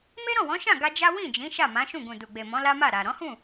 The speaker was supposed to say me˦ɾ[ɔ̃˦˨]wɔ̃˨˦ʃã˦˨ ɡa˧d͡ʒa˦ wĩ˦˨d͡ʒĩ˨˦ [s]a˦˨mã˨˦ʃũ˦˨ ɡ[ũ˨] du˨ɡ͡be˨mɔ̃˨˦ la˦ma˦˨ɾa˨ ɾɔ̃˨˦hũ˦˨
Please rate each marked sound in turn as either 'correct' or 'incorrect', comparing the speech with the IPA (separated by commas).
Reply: correct, incorrect, correct